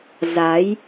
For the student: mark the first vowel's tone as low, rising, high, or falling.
rising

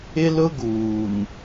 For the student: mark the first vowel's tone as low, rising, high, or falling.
high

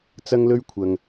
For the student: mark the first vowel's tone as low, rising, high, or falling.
high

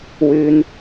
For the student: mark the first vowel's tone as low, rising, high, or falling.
low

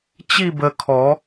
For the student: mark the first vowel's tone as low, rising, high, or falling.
falling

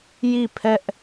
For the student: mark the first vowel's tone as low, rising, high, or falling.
falling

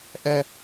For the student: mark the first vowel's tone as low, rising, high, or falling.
falling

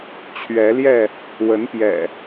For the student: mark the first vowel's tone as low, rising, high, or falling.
rising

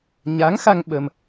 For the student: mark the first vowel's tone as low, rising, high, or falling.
rising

